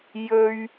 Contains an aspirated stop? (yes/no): no